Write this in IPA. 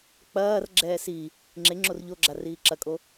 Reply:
k͡pɐːrɡ͡ǁɛː si | ŋ͡ǁe ŋ͡ǁorʎoɡ͡ǁa riːǁɐkʼo

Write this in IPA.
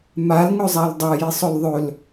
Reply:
malŋɵzˤal dˤajisˤɵl ðˤɵl

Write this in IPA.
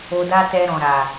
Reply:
o˧da˦tɛ˧ ɾɔ̃˨ɾa˨

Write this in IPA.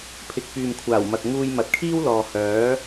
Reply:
pʰɪ˨k̚pyː˨mkʷʰaː˨˩w mɐ˨k̚ ŋuː˧jmɐ˨t̚kʰiː˥wlɔː˨ hœː˨˥

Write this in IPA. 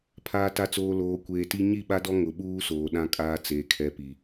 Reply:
pʰaː˨ta˨t͡soː˨ loː˨kʷeː˨ti˦ ɲi˦˨ɓa˦dɔ˦ ŋʊ˨ɓuː˦soː˨ ɗã˦kʼaː˦t͡seː˨ kʰɛ˦pi˨

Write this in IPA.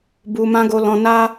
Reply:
bu˧ mã˧ɡo˧ lɔ̃˧na˦

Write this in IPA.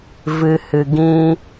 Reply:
vɨ˨hɨ˨ ɡĩ˧

